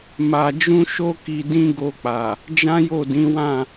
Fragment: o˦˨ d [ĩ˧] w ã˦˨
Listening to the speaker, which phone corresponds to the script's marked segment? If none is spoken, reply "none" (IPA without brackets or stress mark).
ĩ˨˦